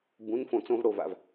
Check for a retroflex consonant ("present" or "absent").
present